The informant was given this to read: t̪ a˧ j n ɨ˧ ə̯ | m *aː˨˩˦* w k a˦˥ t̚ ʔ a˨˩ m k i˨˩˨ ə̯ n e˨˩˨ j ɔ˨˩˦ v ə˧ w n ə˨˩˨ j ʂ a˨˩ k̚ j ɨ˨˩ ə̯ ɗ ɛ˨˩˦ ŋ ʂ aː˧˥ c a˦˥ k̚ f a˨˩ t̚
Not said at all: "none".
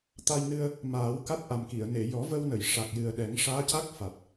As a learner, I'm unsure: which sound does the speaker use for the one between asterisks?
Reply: aː˨˩˦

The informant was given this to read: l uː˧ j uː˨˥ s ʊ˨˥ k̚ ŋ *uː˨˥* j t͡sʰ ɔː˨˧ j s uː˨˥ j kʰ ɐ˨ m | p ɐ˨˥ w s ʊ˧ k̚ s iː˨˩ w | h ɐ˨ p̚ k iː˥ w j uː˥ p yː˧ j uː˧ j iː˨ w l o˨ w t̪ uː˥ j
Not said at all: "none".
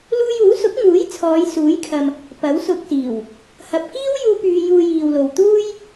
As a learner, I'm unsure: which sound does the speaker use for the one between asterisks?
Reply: uː˨˥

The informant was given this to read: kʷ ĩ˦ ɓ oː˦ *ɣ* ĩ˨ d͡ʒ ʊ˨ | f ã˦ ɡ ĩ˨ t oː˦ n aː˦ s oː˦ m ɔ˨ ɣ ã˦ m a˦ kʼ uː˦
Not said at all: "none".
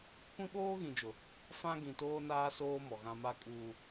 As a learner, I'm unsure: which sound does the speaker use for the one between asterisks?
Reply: ɣ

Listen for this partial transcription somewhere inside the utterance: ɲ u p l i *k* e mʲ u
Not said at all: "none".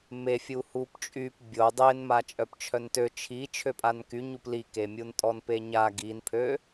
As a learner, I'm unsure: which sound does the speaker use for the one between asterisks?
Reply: k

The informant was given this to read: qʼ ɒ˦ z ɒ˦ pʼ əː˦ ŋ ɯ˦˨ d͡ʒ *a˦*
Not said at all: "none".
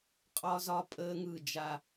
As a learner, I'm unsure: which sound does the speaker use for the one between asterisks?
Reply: a˦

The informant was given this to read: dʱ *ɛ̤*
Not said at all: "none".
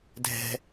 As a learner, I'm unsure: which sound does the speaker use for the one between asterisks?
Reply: ɛ̤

